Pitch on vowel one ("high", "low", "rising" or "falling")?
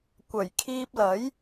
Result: low